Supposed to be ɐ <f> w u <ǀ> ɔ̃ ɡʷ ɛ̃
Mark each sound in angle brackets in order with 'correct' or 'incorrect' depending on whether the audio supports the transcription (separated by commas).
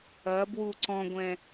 incorrect, correct